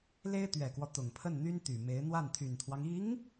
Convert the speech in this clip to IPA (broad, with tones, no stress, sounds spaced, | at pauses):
l e˥ ɪ̯ t̪ ɥ ɛ˨˩ k w ɔ˦ t̪ ʊ˨˩ ŋ pʰ ə˥˩ n n̪ y˥ n t̪ y˨˩ m e˧˥ ɪ̯ n̪ w a˥˩ n t̪ʰ y˨˩ n t̪ʰ w ɑ˦ ŋ i˧˥ ŋ